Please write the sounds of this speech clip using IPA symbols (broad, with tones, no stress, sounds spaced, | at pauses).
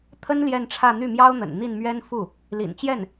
t̪ʰ ə˥ n l j ɛ˥˧ n ʈ͡ʂʰ ä˥˧ n̪ y˥˩ m j ɑ˥ ʊ̯ n̪ ə̰˨˩ n n̪ i˥˩ n m ɥ ɛ˥ n f u˥˩ | l ḭ˨˩ n t͡ɕ j ɛ˥˩ n